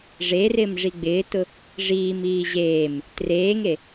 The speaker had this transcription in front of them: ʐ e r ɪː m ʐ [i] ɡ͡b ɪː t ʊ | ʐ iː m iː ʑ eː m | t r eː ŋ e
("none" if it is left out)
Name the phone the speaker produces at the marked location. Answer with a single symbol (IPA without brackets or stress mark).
i